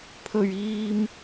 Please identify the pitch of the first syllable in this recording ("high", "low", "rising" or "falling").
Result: low